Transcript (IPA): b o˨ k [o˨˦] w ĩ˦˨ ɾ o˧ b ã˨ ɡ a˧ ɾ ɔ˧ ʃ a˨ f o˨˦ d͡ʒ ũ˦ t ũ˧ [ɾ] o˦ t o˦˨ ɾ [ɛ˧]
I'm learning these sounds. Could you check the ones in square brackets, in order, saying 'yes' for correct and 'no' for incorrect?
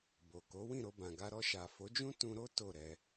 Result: yes, yes, yes

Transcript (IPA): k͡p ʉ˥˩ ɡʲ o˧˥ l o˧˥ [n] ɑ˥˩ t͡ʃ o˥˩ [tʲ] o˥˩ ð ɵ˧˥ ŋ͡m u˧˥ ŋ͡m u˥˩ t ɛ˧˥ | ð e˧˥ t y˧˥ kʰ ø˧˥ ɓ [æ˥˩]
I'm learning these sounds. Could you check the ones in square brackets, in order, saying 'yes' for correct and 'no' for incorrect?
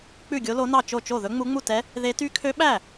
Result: yes, no, yes

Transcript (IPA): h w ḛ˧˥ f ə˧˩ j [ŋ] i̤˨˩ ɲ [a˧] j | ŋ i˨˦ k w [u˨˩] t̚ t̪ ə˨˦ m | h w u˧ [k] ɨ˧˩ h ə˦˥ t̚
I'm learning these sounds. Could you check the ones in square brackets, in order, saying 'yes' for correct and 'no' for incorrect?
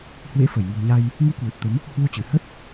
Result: yes, yes, yes, no

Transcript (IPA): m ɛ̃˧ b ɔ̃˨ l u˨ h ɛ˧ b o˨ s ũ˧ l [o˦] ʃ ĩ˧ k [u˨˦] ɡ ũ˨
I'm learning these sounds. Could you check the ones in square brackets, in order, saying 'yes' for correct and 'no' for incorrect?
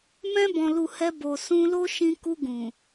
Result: yes, no

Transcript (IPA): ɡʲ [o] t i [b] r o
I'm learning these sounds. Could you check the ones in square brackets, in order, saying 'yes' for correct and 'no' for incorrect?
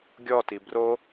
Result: no, yes

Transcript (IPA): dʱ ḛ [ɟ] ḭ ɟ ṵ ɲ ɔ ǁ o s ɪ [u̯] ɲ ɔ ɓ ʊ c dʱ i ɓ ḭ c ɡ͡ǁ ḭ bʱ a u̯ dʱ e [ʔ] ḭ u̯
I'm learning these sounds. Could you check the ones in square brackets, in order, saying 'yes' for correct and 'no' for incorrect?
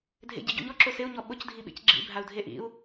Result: yes, yes, yes

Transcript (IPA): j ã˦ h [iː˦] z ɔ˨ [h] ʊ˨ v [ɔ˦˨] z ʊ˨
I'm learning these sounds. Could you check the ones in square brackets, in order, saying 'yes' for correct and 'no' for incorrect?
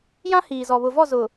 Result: no, no, yes

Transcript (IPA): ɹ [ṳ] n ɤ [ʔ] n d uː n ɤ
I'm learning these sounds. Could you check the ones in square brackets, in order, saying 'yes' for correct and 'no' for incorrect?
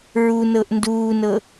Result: no, yes

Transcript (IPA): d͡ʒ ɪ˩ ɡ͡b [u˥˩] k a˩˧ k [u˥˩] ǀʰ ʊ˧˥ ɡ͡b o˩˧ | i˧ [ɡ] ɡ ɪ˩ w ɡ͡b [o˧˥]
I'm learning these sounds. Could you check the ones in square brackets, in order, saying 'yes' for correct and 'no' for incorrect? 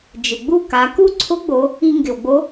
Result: yes, yes, no, yes

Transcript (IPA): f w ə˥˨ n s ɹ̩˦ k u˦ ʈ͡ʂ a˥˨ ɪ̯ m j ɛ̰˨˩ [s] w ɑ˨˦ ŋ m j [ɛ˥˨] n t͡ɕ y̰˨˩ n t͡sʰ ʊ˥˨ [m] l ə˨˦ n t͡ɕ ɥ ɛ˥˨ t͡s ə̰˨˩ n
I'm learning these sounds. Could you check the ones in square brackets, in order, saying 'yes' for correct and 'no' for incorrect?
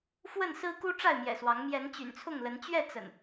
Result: yes, no, no

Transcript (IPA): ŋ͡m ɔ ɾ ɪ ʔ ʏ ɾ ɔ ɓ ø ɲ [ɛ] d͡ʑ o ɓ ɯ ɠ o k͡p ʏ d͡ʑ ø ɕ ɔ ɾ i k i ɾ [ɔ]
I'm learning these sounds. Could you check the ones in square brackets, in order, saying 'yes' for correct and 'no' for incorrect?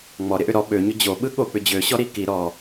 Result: no, yes

